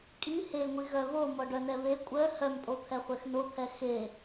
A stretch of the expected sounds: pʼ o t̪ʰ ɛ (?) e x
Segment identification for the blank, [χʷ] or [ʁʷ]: χʷ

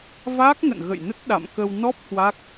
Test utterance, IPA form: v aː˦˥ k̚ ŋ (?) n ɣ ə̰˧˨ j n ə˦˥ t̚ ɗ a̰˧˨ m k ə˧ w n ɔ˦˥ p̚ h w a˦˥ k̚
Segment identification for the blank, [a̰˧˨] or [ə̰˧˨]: ə̰˧˨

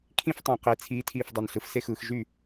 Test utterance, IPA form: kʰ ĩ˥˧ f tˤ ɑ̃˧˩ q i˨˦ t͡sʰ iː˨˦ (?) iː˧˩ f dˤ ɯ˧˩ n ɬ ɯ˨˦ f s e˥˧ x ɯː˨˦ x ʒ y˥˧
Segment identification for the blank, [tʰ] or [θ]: tʰ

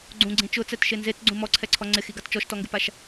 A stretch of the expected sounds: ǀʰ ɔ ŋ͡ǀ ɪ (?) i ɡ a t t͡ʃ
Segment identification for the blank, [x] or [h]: x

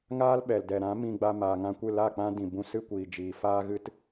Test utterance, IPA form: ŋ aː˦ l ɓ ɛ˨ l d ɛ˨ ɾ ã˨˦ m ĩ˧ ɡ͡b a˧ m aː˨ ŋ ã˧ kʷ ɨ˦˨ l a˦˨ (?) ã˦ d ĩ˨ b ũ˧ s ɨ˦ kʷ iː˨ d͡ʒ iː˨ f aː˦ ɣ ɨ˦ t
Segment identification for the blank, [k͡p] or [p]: k͡p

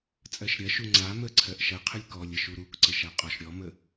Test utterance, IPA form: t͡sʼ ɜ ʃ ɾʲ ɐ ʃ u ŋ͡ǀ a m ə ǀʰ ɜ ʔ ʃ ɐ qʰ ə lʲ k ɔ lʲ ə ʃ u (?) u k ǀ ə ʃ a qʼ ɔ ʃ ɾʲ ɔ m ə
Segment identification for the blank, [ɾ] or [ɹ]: ɾ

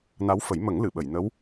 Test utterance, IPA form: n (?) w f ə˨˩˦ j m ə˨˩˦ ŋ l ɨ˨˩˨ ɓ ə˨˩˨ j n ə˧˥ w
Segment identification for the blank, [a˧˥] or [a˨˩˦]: a˧˥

